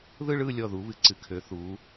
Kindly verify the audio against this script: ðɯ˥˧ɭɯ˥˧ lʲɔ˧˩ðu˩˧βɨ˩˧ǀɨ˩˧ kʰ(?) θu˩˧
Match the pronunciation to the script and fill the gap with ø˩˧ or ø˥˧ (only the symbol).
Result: ø˩˧